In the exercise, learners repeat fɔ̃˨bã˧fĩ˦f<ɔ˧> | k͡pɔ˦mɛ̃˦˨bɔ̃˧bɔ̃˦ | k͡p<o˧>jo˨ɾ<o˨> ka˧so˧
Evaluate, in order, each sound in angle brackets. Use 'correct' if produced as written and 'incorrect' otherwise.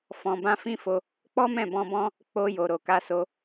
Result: incorrect: o˧, correct, correct

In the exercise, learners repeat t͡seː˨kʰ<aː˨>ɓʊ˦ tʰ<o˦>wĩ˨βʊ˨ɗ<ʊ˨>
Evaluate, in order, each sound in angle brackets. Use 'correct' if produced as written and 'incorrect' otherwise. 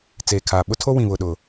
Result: correct, correct, correct

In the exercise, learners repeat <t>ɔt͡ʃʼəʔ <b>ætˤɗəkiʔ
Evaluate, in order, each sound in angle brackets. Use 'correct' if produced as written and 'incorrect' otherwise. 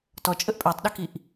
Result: correct, incorrect: pʼ

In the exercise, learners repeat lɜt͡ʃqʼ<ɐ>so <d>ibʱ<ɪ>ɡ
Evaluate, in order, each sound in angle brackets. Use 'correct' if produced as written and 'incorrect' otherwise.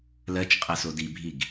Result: correct, correct, incorrect: i

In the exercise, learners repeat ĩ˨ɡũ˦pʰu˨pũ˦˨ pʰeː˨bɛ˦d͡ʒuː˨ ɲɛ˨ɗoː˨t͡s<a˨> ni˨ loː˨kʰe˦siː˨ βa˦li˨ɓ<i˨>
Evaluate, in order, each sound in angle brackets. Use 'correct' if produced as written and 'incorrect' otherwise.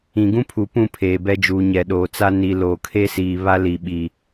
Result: incorrect: a˦, correct

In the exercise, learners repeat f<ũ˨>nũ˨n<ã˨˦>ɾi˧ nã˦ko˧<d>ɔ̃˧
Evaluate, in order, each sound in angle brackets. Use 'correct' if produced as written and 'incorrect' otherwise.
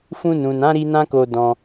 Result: incorrect: ũ˧, correct, correct

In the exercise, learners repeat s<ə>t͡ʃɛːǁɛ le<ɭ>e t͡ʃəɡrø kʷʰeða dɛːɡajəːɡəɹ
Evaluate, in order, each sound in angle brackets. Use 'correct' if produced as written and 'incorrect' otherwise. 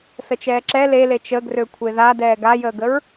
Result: correct, incorrect: l

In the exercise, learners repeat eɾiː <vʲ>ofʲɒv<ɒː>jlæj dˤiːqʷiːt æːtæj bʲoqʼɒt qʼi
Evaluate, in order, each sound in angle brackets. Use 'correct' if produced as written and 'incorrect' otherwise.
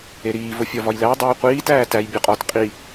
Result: incorrect: v, incorrect: ɒ

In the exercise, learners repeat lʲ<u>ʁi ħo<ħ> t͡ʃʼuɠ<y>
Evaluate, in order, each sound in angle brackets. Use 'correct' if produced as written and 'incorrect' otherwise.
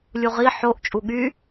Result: correct, incorrect: ʔ, correct

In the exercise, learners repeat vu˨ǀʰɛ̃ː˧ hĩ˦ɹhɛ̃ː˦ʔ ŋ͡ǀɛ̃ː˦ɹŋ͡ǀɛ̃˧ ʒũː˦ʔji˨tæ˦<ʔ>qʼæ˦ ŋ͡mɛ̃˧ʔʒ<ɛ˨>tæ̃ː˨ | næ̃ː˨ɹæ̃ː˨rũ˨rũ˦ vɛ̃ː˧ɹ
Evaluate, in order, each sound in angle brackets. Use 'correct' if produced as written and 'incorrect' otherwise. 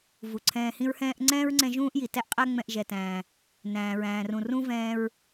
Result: correct, correct

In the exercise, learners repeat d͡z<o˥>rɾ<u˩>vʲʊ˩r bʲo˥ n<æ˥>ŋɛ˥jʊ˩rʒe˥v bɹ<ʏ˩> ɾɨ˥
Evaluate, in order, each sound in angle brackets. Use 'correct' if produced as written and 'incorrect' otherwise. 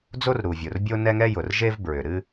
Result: correct, correct, incorrect: ɛ˥, correct

